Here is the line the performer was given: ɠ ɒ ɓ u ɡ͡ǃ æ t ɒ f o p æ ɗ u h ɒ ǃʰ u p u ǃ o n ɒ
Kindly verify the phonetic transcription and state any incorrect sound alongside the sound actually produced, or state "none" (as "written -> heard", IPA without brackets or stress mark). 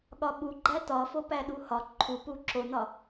ǃ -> ǁ